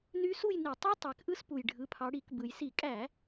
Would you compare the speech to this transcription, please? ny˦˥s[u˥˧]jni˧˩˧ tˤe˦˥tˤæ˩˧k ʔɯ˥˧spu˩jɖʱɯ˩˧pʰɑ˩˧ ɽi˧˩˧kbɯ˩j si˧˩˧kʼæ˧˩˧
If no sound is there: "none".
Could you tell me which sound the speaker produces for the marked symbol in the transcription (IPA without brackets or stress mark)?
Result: u˥˧